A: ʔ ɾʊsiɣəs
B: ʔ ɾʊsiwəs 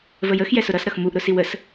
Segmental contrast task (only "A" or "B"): B